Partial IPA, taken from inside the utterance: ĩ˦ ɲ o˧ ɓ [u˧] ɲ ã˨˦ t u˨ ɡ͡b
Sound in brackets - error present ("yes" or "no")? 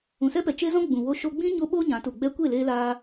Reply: yes